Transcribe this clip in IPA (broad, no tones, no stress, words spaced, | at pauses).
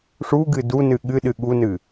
ʂuɡɨ dunɨ ɠɨɗɨ ɠunɨ